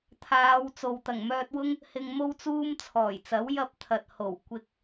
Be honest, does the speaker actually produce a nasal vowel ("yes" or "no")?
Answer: no